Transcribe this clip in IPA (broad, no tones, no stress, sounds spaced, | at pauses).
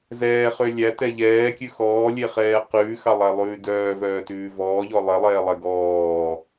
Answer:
z ɛː χ ø lʲ æ t ɛ ʎ ɛː kʲ ʉ x ɔː lʲ e χ ɛː q ʉː x ɑ lˠ æ lˠ ʉː d œː v œː t ʉː v ɔː ʎ ɔ lˠ e lˠ ɛː lˠ ɛ ɡ ɔː